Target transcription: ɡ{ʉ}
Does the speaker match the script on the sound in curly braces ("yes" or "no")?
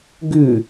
yes